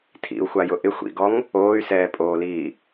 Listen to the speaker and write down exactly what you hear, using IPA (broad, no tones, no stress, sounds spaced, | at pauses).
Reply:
tʰ ḭ u̯ xʷ a j ʊ ʔ ɪ xʷ ḭ ɡ ɔ ŋ | oː y̯ s ɛː pʼ oː l iː